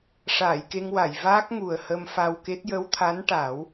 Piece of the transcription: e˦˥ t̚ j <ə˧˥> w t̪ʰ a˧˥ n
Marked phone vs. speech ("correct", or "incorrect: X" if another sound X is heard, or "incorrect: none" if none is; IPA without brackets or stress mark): correct